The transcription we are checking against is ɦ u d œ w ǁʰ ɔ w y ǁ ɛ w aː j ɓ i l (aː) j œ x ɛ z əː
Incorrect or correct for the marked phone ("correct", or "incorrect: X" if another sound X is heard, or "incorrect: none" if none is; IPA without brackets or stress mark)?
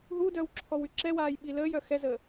incorrect: əː